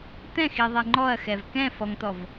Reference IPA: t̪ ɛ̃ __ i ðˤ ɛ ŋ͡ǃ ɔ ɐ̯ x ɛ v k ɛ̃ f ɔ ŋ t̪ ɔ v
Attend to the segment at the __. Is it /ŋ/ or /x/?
x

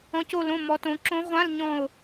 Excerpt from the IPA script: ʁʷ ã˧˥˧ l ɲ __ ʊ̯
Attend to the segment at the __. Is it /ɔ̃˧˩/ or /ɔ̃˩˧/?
ɔ̃˧˩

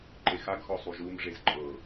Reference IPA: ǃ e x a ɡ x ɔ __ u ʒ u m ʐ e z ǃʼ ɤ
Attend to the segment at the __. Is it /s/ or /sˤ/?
sˤ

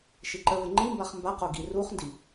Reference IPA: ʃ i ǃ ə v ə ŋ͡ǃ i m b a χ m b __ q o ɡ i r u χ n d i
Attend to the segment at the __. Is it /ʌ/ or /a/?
a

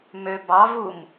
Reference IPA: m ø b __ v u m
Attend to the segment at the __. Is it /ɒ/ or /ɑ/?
ɑ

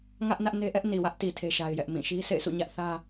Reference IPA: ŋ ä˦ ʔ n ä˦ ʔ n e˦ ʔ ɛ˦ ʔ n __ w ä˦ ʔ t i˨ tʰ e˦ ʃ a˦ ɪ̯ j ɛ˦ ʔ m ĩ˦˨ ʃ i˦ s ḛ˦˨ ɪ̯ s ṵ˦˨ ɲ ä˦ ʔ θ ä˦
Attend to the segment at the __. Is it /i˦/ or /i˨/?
i˨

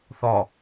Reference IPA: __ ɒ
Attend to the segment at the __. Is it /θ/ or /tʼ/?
θ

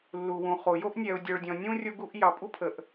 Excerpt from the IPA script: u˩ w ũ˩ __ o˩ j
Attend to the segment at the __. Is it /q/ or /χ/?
χ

